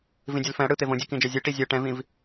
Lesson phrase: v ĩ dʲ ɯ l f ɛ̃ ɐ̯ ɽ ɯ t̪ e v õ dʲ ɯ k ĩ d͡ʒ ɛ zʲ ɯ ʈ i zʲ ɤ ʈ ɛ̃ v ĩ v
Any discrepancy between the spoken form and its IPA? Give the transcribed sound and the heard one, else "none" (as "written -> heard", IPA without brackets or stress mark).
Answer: none